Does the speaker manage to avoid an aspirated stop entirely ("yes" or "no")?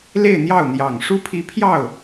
no